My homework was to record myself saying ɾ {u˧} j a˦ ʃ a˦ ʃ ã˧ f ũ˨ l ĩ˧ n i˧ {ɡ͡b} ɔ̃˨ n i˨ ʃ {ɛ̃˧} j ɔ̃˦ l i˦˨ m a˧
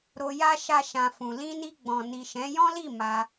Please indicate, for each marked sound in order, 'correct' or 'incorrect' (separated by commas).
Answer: incorrect, correct, incorrect